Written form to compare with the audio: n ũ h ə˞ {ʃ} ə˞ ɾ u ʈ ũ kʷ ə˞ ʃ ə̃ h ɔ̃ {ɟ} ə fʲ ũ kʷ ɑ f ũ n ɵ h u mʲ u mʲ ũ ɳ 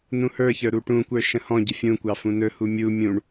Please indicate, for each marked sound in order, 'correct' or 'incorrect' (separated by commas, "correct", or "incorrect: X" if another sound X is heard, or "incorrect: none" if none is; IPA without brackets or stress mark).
incorrect: ç, correct